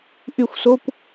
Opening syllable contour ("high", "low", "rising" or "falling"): falling